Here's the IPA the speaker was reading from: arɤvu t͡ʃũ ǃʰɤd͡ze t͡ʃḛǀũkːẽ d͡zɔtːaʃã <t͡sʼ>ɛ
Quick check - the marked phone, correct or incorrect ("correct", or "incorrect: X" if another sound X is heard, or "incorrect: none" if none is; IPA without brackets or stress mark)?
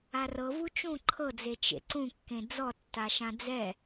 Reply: incorrect: d͡z